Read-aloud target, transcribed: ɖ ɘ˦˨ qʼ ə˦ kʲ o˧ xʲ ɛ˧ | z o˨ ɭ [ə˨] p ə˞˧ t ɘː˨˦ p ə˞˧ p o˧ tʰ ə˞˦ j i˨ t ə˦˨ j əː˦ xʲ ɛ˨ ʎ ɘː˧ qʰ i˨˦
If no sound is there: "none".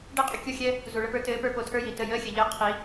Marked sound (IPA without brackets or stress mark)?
ə˧